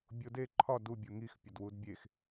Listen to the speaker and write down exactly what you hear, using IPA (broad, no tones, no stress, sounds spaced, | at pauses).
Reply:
bʲ o d e ǃʰ ɒ d u bʲ o ŋ i x pʲ ɒ d w u d bʲ e x